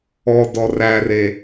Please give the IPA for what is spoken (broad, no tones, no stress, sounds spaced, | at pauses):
ɔ d ɔ r æ r e